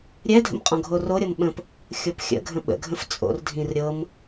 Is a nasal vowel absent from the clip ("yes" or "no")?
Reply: no